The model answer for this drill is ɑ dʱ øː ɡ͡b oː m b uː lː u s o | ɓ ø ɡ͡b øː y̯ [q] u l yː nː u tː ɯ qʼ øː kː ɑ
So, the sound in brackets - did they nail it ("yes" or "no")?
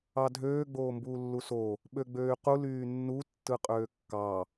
yes